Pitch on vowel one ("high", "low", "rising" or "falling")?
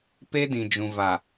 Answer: high